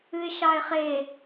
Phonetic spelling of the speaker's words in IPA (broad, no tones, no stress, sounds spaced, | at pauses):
ɨ ɪ̯ ʃ ɑ ɪ̯ χ e